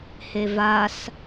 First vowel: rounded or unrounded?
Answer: unrounded